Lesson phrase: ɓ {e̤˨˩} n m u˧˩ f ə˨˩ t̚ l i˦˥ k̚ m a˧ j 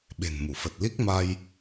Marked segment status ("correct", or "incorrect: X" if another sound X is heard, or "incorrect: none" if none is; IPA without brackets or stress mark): correct